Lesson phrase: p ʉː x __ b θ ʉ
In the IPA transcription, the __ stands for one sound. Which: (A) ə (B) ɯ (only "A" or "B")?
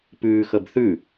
A